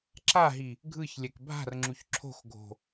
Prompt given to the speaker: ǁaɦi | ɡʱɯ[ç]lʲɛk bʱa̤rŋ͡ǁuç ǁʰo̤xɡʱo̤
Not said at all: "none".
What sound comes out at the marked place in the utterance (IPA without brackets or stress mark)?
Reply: ç